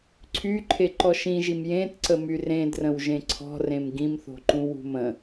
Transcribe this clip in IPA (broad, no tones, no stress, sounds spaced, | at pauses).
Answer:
ǀʰ y ǃʰ e ǃ ɔ ʃ ĩ ʒ i m j ẽ t ǀ ə m y r ẽ d r ə̃ w ʒ ẽ ǀʰ ɔ̤ r ẽ m ɡ ĩ m θ o̤ ǃ ũ w ṳ m ə̃